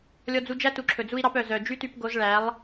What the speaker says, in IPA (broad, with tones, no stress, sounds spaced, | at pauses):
lʲ ɔ˧ d͡z u˧ d͡ʒ æ˦ t u˨ ǁʰ ɵ˨ d͡z u˦ i̯ ɾ ɑ˦ p œ˨ z œ˨ d͡ʒ y˦ t y˧ p ɡ o˨˦ z ɭ æ˨˦ lˠ